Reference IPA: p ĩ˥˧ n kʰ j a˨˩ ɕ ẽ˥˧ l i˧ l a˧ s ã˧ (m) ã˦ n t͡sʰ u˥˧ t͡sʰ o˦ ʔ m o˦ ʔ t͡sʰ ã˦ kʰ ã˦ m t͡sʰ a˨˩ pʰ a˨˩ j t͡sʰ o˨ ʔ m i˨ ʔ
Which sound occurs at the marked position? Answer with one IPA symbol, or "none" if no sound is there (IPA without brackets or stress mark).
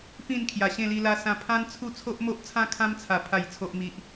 pʰ